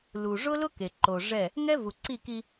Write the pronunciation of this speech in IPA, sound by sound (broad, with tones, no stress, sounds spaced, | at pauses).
l u˨ ʐ ʊ˦ l ʊ˦ k e˨ ǃ o˨ ʐ ɛ˦˨ | ŋ ɛ˦ v u˨ ǀ i˦˨ k i˦